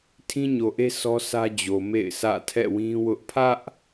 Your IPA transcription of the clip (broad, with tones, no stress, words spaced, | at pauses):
tʰĩ˦ɲo˨ʔe˦ sɔ˦sä˦ d͡ʑo˨mḛ˦˨ɪ̯sʰä̰˦˨ tʰɛ̰˦˨wĩ˦wʊ˦ʔ pʰä˦ʔ